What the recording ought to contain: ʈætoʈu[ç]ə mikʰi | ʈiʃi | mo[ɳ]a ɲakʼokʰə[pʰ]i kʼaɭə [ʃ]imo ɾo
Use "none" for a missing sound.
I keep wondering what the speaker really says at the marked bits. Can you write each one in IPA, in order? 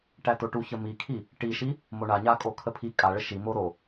ç, ɳ, pʰ, ʃ

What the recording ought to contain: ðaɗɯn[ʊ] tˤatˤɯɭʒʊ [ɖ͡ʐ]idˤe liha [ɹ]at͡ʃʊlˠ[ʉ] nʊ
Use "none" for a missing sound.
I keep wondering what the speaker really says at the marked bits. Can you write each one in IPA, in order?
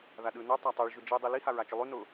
ʉ, d͡ʒ, ɹ, ʉ

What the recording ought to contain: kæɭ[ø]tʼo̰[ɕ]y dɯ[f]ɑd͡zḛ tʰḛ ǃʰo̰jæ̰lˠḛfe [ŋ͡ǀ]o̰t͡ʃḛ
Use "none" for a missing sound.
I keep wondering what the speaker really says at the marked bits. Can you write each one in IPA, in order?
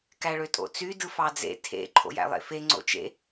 ø, t͡s, f, ŋ͡ǀ

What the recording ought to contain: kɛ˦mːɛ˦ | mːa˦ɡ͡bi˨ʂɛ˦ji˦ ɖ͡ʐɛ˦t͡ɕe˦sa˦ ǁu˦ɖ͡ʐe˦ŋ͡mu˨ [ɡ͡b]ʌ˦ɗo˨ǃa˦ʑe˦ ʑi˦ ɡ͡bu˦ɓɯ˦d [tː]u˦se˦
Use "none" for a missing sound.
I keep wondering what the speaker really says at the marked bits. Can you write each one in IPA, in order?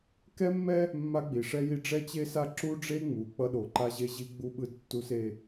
k͡p, tː

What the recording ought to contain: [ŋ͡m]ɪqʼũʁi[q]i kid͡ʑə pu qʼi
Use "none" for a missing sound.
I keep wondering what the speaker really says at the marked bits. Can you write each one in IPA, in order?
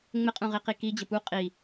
ŋ͡m, q

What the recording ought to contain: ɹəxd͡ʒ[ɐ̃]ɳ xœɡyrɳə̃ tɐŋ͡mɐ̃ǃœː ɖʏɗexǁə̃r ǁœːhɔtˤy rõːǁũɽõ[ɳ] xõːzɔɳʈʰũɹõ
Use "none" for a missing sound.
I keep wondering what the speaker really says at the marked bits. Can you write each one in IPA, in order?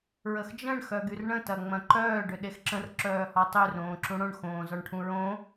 ə̃, ɳ

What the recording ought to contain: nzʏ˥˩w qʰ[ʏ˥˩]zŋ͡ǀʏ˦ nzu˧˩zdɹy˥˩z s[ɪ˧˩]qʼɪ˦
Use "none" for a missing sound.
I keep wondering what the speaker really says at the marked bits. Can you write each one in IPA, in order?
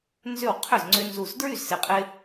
ʏ˥˩, ɪ˧˩

